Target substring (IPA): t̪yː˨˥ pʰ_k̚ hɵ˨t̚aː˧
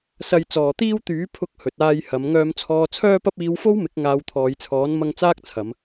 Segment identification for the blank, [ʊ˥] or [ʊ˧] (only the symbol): ʊ˧